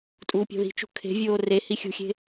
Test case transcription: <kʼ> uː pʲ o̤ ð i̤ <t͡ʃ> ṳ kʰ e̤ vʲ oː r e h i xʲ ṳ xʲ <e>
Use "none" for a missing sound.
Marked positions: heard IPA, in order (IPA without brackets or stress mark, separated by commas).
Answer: tʼ, t͡ʃ, e̤